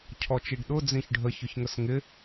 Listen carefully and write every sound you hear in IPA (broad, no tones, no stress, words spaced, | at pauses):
cʰɔt͡ʃiɖɗʊ d͡zĩçɖʱə çʊçŋəsŋɪ